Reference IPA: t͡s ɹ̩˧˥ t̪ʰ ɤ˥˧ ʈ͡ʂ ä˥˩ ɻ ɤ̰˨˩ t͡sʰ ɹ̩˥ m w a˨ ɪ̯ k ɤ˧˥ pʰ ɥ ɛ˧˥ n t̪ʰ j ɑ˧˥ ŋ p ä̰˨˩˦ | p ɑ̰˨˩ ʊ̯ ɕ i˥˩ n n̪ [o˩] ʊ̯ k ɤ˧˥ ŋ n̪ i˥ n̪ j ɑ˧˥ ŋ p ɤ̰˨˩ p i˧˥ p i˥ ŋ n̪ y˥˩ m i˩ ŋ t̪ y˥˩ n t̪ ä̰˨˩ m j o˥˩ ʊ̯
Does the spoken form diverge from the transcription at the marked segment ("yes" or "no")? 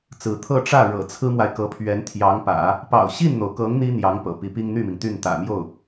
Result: no